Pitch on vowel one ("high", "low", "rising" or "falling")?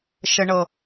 low